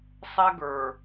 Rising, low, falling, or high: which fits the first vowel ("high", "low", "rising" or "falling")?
high